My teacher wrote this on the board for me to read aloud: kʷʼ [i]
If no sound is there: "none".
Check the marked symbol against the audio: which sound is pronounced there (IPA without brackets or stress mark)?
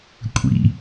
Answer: ḭ